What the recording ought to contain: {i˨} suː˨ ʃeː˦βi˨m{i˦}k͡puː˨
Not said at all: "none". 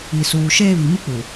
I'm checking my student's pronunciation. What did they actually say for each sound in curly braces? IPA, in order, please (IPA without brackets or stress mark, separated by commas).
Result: i˨, i˦